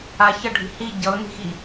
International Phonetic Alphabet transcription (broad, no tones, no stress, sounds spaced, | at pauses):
a ç ʌ ɖʱ i̤ h i ɟ ʌ ʊ̯ n i̤ x i